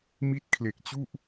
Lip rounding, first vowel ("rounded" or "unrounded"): unrounded